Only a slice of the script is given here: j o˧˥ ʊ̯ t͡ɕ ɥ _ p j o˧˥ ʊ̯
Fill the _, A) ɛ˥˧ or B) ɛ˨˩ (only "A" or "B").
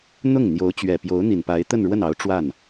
B